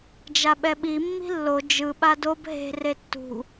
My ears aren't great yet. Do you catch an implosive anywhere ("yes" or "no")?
yes